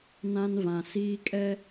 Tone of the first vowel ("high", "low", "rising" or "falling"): high